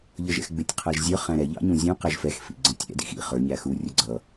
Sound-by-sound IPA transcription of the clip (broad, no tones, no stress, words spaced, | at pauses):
ʎʌʒɛ̰xɡ͡bɪtʲ qʰæʒzʲə˞ χæ̃ɾɛ ʎɑ̰ɲũzʲũ qɛʒfɛx fḭɡ͡ǀə̃tʲɛ̰ dḭxḭ χə˞ ɲæxu rʲʊɡ͡ǀʌ